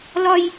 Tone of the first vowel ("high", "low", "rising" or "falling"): high